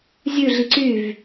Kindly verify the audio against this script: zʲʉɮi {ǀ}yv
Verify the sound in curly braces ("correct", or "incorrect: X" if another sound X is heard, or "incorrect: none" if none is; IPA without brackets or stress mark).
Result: correct